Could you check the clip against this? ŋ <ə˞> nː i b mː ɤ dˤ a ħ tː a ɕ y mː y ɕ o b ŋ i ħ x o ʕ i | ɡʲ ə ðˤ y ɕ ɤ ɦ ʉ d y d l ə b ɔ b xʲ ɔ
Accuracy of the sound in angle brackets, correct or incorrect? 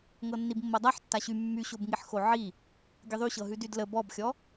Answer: incorrect